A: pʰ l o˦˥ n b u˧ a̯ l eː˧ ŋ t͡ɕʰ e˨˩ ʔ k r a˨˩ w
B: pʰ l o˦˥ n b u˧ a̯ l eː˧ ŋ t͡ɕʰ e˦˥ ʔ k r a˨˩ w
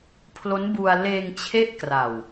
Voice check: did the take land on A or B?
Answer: B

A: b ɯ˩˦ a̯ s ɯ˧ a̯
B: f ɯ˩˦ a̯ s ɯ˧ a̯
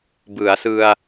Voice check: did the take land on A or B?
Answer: A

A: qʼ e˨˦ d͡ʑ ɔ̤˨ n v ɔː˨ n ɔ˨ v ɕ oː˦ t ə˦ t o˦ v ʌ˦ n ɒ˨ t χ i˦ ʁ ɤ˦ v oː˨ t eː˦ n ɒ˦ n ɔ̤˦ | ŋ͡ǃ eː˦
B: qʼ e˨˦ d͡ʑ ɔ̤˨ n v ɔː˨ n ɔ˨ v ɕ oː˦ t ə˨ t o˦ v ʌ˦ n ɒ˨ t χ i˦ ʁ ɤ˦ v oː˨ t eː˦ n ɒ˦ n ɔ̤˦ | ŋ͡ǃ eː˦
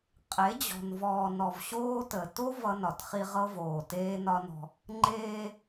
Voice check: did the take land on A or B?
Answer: B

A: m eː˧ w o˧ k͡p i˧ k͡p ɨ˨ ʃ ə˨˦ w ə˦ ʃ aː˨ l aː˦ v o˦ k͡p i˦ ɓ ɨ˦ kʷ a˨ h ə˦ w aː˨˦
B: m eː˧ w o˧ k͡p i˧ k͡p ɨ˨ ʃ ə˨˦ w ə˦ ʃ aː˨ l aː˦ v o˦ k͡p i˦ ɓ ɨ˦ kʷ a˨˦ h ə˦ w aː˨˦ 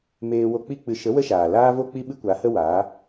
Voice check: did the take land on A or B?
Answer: B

